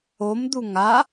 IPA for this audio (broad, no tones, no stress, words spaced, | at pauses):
omd̪u ŋa